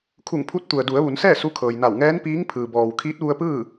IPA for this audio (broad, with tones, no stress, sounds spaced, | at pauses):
kʰ u˧˩ ŋ pʰ u˧˥ t̚ t̪ u˩ ə̯ d u˩˧ ə̯ ʋ u˩˧ n s ɛː˥˨ s u˧˥ kʰ ɤː˩ j n a˧˩ w ŋ ɛː˧˥ n p iː˧˥ ŋ pʰ ɯː˩ b ɔː˩ w kʰ iː˧˥ t̚ ʋ u˧ ə̯ p ɯː˥˨